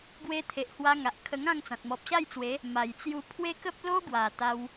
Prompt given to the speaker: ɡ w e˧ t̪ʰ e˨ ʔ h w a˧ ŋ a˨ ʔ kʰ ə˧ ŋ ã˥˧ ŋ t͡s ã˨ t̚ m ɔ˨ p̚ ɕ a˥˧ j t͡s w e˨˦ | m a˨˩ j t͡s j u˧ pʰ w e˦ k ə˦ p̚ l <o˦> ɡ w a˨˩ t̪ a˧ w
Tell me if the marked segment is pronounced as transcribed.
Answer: yes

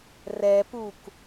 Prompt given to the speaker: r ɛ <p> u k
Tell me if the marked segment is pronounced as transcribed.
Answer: yes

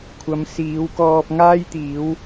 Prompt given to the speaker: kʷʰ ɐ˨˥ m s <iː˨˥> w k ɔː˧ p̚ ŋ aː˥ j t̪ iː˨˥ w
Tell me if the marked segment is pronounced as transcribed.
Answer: yes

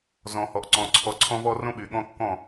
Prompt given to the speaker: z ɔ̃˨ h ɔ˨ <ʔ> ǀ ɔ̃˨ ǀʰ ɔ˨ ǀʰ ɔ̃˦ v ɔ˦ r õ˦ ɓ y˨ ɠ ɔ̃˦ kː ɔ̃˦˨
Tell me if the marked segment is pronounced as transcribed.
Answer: yes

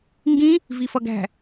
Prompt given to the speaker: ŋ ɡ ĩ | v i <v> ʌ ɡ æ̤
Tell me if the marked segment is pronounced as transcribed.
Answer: no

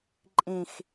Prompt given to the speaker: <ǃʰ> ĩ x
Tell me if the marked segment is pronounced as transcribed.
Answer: no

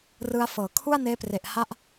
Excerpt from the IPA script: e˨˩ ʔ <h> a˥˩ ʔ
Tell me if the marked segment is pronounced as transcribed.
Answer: yes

